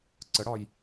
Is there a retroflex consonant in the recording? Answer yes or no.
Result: yes